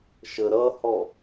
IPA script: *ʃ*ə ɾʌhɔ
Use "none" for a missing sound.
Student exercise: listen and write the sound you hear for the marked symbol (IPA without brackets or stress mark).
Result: ʃ